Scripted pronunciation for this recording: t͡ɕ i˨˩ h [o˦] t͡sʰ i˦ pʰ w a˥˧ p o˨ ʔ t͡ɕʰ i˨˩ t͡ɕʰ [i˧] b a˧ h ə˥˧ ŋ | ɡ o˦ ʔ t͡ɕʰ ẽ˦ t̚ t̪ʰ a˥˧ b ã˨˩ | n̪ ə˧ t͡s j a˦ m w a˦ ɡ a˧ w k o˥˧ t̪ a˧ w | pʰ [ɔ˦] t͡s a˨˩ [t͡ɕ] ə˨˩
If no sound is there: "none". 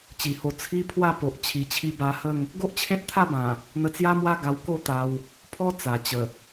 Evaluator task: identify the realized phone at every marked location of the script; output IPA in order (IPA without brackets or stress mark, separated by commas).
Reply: o˧, i˧, ɔ˦, t͡ɕ